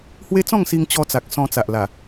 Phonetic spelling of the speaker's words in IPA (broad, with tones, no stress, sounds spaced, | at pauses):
h w e˦ t͡s ɔ̃˥˧ ŋ s i˧ ŋ t͡ɕ ɔ˧ t͡s a˨ k̚ s ɔ̃˧ t͡s a˨ ʔ l a˨˩